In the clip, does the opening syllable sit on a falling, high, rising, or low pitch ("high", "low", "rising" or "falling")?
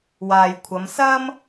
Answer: low